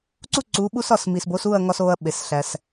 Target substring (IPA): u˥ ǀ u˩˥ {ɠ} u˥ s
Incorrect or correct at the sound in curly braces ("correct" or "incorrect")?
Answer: incorrect